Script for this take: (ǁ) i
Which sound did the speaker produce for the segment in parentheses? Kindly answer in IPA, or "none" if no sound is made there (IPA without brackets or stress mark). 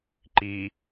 ǃ